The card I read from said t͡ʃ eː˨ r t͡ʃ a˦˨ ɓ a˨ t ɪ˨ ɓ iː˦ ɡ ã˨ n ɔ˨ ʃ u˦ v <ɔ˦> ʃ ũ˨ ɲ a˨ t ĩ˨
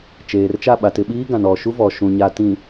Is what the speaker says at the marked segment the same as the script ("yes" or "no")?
no